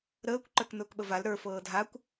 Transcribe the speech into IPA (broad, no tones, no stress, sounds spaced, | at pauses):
ɾ əː kʷ ǃ ə˞ k n ʊː k ɓ ə v a l ɾ ə˞ f ɤː dʱ a kʷ